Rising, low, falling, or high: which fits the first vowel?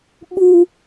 high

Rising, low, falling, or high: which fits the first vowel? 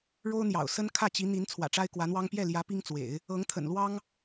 high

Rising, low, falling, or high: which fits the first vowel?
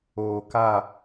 low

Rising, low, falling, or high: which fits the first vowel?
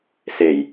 low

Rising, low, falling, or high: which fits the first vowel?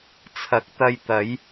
rising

